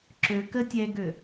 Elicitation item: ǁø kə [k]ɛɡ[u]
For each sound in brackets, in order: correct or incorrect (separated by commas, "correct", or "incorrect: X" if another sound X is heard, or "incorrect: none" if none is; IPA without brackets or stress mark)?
incorrect: tʲ, incorrect: ø